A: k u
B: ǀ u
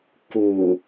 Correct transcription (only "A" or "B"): A